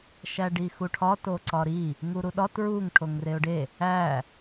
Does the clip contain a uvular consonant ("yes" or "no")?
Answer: no